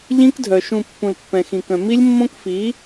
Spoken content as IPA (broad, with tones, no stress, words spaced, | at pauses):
ʎĩ˦kdʱœ˨ ʃũ˨ pːũ˨lpːɛ̃˨xĩ˨kœ̃˨ mi˦lʲmːõ˦kfi˨˦